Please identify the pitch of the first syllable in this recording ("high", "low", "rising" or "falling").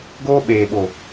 high